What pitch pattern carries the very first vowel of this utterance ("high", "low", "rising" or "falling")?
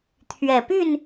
low